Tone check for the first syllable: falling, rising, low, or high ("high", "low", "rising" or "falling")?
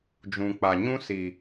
low